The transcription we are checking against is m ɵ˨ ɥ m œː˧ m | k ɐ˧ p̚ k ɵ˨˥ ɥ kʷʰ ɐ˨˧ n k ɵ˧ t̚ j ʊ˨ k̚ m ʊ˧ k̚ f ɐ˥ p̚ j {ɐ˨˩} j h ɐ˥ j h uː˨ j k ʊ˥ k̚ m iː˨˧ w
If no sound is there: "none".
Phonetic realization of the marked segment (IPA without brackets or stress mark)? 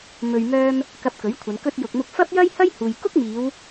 ɐ˥